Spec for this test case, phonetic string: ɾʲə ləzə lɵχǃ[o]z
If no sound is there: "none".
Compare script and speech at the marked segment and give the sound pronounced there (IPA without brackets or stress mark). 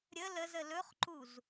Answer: u